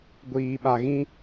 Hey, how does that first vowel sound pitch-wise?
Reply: low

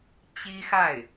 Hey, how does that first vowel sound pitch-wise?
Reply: high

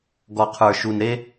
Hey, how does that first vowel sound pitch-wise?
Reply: low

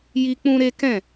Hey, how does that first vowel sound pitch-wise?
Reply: high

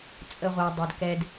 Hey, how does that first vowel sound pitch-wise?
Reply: high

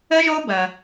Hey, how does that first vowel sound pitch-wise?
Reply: high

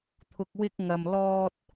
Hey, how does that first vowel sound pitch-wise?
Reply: low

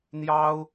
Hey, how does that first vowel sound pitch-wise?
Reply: high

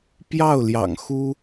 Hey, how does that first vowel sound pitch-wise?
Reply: falling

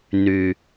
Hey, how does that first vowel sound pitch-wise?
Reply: low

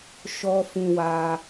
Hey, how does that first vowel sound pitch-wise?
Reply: high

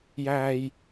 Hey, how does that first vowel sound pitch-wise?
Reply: high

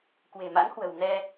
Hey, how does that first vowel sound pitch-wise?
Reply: low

